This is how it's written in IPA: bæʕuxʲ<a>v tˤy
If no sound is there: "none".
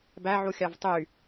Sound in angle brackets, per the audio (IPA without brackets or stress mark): ɑ